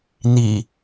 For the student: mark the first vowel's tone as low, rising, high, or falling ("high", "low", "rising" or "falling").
low